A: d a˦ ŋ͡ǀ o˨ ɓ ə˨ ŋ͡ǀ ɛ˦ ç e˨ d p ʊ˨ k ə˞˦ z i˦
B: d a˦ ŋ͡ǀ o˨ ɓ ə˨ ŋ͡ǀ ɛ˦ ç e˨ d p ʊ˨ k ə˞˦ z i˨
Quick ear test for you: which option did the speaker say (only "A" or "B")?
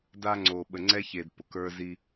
A